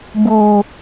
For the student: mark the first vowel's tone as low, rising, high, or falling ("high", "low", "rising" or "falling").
low